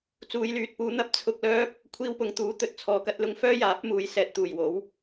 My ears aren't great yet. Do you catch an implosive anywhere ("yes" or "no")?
no